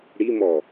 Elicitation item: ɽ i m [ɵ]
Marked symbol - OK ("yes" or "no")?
no